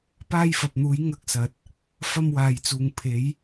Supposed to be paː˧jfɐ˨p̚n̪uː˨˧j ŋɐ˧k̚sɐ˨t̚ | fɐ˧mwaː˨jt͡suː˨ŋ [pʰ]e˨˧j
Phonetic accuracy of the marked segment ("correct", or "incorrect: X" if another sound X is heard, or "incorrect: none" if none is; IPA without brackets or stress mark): correct